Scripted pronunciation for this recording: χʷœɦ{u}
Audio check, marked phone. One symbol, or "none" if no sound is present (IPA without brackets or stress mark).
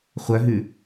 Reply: ʉ